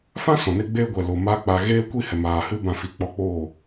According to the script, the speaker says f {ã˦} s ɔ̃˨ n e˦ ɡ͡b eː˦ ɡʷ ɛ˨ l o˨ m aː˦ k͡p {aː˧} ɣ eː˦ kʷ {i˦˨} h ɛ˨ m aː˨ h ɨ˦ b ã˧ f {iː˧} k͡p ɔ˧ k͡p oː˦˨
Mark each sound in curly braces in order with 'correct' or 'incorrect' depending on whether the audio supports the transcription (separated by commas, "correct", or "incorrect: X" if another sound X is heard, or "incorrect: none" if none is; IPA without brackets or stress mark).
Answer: correct, incorrect: a˧, correct, incorrect: i˧